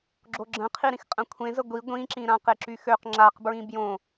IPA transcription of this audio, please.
ɡ͡ǁ o ɡ͡ǁ ə̃ qʰ i ɾ ĩ x qʼ ə̃ kʷʰ ẽ z ə ɡʷ i ɡʷ ĩ ǁ ĩ ɾ ã q e ǁ y x ø q ŋ͡ǁ a q b ɹ ĩ b j õ

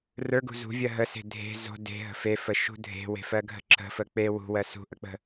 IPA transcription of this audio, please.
r ə˞ ɡ ṳ z ṳ vʲ ɜ ɦ ə s e̤ dʱ e̤ z o̤ d e̤ ɦ ə̤ f e f ə ʃ ṳ dʱ e̤ w e̤ f ɜ ɡʱ ə̤ ǁ ə̤ f ə k͡p e w ṳ w ɜ s ṳ ʔ ə k͡p ə̤

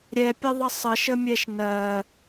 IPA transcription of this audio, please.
ɾʲ ɛ pʲ ə ðˤ ə sˤ ə ʃ ə mʲ ɛ ʃ n ɜ

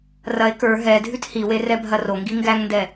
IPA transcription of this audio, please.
r ɐ e̯ k ə˞ ɦ ɛ dʱ ʉ t h i w e r ɛ bʱ ɐ r o ŋ ɡ i ŋ ɡ æ ŋ n d ɛ

